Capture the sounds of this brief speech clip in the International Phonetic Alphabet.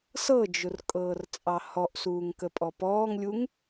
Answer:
s ɤ d͡ʒ ʊ r kʼ ɤː r t͡sʼ ɑ h ɔ ʔ s uː ŋ k ə pʼ ɔ p ɔː ŋ lʲ u ŋ

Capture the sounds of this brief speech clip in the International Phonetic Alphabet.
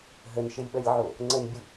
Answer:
ɦ ə n ʃ ɘ lʲ ɓ ʌ lʲ ʕ o | ŋ͡ǀ ə n bʲ u

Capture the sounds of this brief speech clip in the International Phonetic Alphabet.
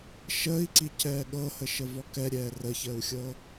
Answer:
ʃ əː i̯ ǀ i c ɛː ɠ ɤ h ə ʃ ə v ɔ k ɛ ɾʲ ɛː r ə ç əː u̯ xʲ ɤː

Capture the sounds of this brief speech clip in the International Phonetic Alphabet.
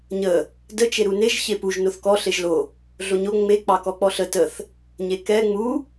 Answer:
ɲ ə | d ə t͡ʃ e ɾ u n e ʒ ç e p u ʒ n o θ k ɔ ɬ e ʒ l o | ɮ o ɲ o ŋ͡m e k͡p ɑ k ɔ k͡p ɔ ɬ ə t ə θ | ɲ e k ɛ ŋ͡m u

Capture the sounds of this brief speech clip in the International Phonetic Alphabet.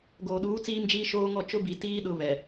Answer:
ɡ oː˨ ɗ uː˨˦ t͡s iː˦ m d͡ʒ iː˦ ʃ oː˦ ŋ ɔ˦˨ t͡ʃ ʊ˦ b i˨ t iː˦ ɗ ʊ˦ β ɛ˨

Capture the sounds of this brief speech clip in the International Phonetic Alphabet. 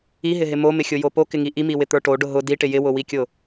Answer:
i ɦ ɪ ɦ ɪ m o m ɪ xʲ ʊ j o p o k ɪ ŋ i ʔ i m i w ɪ t̪ ə˞ ʈ o ɖ ʊ ɦ ʊ d i ʈ ɪ j ɪ w ʊ w i kʲ ʊ

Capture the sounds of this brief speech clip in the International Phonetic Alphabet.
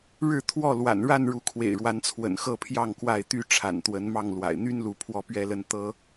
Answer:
ɻ ɻ̩˥˨ t̪ʰ w ɔ˥˨ l w a̰˨˩ n ɻ a˥˨ n ɻ u˨˦ kʰ w ḛ˨˩ ɪ̯ ɻ w a˨˦ n t͡sʰ w ə̰˨˩ n x ɤ˥˨ pʰ j ɑ˥˨ ŋ k w a˥˨ ɪ̯ t̪ y˦ ʈ͡ʂʰ a̰˨˩ n t̪ w ə˨˦ n m ɑ˥˨ ŋ l w a̰˨˩ ɪ̯ n̪ y˦ n l u˨˦ pʰ w ɔ˦ p ɥ ɛ˦ l ə˦ n t̪ ɤ˦

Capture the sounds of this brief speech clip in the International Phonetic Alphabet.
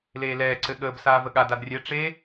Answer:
l eː l ɛː ǀ ɘ ɠ əː b s aː v ə ɠ a d a d rʲ ɛ ʈ͡ʂ e

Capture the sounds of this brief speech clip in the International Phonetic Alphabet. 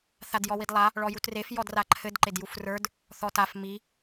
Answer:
θ a d j ɔ w i d lˠ a | ɭ ɔ j u t r e f j ɔ d r a ǃʰ ɘ d ǃ e d j u f r ə˞ d | θ ɔ t a f m i

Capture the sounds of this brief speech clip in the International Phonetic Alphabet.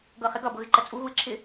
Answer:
ɡ ɤ χ ɪ ɡ ʌ b ɤ ɣ ɪ ǃ ə t͡sʼ u ɣ u ɪ̯ ǁʰ ɪ

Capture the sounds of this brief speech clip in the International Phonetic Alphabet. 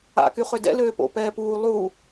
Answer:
a̰ k y χ ʏ d ɛ̰ l øː p o̰ p ɛː p uː lˠ u

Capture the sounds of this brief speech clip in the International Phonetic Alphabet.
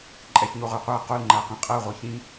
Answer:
ǃʼ ɛ ç ɲ o ʁ ə˞ qʷ æ q o l ŋ͡ǃ æ q ĩ qʼ ɜ ʁʷ i ç ĩ

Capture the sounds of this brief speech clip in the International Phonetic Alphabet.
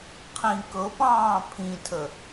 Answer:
qʰ ĩ k ɤ p ɑ̃ː pʰ ĩ tʰ ə

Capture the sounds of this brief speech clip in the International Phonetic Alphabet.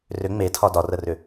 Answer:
r ʏ ŋ͡m e tʰ ɒ d ɒ r ə r ʏ

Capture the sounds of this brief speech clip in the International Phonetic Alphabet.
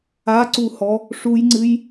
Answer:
a ǀ u h ɔ | ʂ u j ŋ͡ǀ ɨ j

